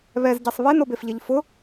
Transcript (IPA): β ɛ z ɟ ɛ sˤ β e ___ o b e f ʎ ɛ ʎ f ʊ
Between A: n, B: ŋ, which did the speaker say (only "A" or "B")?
A